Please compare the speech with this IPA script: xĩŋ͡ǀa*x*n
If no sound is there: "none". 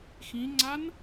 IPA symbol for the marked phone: none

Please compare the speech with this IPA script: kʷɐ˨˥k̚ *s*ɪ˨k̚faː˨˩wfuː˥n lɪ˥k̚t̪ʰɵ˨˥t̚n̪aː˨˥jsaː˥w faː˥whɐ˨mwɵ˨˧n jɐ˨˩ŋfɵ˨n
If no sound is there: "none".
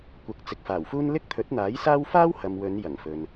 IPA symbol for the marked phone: t͡s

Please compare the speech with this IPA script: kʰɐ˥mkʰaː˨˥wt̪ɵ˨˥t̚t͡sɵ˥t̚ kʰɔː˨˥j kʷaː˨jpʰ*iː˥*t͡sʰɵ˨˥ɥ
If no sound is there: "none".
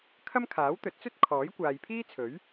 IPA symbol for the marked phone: iː˥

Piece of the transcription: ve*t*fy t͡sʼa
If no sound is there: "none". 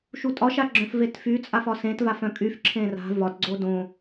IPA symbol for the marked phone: t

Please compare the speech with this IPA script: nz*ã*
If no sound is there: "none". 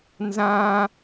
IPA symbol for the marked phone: ã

